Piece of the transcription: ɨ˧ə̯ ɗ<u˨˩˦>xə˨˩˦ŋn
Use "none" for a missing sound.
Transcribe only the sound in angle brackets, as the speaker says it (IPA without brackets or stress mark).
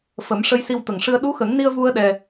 u˧˥